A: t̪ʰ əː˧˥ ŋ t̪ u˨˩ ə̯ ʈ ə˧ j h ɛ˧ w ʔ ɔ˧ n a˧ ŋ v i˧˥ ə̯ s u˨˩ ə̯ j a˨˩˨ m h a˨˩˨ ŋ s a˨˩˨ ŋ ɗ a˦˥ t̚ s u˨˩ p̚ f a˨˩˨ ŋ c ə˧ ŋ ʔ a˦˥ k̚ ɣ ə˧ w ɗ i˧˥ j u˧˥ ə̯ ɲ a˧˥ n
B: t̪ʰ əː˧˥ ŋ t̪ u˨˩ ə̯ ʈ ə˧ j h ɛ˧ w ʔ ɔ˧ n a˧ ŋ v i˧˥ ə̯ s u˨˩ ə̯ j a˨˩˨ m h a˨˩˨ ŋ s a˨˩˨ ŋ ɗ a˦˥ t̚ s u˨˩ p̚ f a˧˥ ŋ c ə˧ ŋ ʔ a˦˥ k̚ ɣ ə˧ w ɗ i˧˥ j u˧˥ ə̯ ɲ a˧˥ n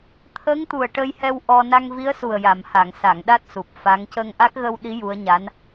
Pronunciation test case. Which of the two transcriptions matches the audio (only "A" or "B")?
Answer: B